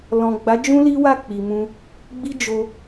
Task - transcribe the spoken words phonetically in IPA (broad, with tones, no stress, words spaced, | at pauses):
lɔ̃˨ ɡ͡ba˨˦d͡ʒũ˦ li˦wa˦˨ k͡pi˨mũ˧ | ɡ͡bi˦d͡ʒo˧